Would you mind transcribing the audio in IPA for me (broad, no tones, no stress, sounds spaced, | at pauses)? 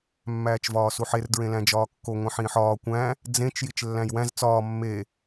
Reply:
mː æː t͡ʃ v ɒː s u ħ e r d ɹ ẽ l æ̃ d͡ʒ ɒː kː o ŋʷ ĩ ħ ĩː ħ ɒː kʷ æ̃ | d͡z ẽ t͡ʃ j i t͡ʃ lː æ̃ j w æ̃ z t͡s ɒː mː e